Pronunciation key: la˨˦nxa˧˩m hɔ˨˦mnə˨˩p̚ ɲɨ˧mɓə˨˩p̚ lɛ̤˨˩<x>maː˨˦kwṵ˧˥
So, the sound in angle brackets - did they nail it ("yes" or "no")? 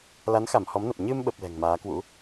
no